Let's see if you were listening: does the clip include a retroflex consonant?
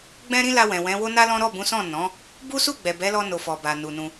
no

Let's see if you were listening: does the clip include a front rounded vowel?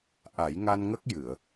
no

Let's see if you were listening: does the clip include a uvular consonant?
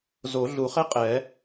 yes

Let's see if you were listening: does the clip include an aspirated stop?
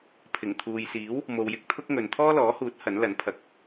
yes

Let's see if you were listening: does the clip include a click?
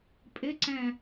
yes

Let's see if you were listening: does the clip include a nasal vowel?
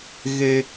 no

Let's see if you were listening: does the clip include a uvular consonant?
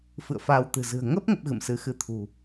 no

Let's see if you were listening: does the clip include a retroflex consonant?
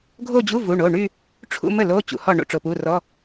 yes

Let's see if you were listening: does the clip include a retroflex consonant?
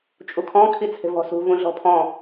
no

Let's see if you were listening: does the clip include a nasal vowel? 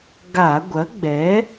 no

